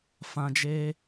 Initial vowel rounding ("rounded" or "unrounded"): unrounded